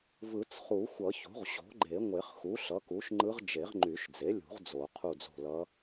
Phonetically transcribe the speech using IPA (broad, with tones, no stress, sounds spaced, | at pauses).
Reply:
v ɯ˨˩˦ t͡s χ u˨˩˦ xʷ ʌ˨˩˦ ç o̤˩˥ ʁ ɕ o̤˩˥ ɡ͡ǃ e˨˩˦ ŋʷ e˨˩˦ χ x u˩˥ ɬ ʌ˩˥ k u˩˥ ʃ ŋ͡ǃ ɯ˧˥ ʁ d͡ʒ e˨˩˦ ʁ ŋ͡ǃ y˨˩˦ ʃ d͡z e˩˥ lʲ ṳ˨˩˦ ʁ d͡z o˨˩˦ qʰ u˦˨ d͡z o̤˦˨ l ʌ˧˥